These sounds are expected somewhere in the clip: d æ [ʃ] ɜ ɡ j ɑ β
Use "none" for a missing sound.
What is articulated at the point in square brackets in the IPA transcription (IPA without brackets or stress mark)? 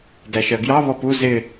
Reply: ʃ